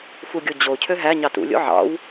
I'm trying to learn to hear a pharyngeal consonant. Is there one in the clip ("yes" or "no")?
yes